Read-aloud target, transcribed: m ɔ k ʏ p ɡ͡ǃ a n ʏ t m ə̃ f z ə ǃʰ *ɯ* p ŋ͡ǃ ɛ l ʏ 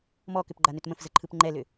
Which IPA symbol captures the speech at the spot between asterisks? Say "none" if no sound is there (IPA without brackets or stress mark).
ɯ